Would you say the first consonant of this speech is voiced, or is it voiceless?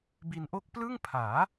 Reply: voiced